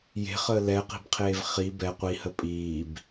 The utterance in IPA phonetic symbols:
j e̤ χ əː l ɛ q i̤ b qʰ eː v χ i b ɛ qʷ i h ə pʼ iː b

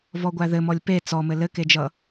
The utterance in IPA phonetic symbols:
v ɔ ɡʷ æ ð ɘ m ɔ lʲ p e t͡s ɔ m ɘ l ɘ k e d͡ʒ ʌ

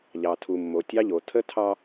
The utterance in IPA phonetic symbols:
ʎ ɑ˨ tʰ u˨ mː o˨ tʲ ɑ˦ ʎ o˨ tʰ ə˦ tʰ ɑ˦

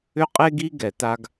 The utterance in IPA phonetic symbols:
ʏ˥ qʼ e˥ ɡ i˥ ɡ ɛ˧˩˧ t a˥ ɡ

